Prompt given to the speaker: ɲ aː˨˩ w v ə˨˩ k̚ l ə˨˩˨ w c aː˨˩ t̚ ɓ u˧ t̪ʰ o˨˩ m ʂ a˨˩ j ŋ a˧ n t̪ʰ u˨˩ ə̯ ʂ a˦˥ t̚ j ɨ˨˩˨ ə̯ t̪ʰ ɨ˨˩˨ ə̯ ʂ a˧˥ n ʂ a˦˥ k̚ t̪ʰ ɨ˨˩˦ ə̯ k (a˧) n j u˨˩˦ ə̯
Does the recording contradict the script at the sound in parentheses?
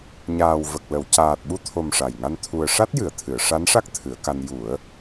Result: no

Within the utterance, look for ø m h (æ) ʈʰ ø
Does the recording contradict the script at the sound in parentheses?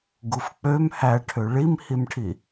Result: no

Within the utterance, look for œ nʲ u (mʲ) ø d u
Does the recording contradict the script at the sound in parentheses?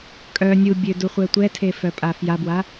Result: yes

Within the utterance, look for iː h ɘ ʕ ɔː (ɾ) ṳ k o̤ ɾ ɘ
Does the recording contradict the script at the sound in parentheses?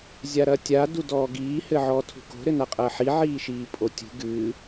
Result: yes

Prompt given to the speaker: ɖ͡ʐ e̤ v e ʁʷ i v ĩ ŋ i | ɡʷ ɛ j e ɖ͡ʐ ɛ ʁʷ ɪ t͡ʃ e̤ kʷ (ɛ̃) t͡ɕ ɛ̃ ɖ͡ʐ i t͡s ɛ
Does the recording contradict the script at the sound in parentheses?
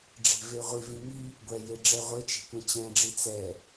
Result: no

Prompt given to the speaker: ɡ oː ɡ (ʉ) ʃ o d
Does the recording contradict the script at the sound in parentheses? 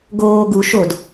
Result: yes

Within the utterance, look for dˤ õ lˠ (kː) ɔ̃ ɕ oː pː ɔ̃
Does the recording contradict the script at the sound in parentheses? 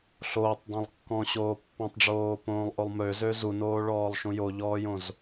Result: no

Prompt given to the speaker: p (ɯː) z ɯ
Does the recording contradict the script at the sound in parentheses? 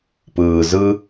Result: no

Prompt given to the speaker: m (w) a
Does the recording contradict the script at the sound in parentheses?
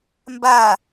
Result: yes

